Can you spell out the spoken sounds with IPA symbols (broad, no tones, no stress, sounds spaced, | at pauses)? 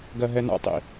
ɡ ɜ ɦ ɛ n a̰ tˤ ḭ